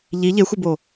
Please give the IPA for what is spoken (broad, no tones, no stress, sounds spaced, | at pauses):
ʎ i ʎ e xʷ e b o